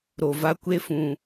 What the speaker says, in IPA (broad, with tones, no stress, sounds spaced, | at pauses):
ɾ o˨ v a˦ kʷ e˦ f ũ˨